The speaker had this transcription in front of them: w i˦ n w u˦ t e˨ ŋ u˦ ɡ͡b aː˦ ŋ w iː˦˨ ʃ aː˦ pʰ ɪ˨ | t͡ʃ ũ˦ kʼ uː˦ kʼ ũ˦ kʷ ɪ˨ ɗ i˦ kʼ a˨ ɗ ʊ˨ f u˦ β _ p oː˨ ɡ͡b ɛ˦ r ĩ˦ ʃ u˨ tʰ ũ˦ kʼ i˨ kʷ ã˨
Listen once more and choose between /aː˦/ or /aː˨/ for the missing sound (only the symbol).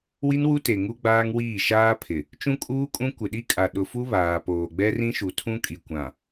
aː˨